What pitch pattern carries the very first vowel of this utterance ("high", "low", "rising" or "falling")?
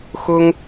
high